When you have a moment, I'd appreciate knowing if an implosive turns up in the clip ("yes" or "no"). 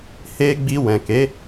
no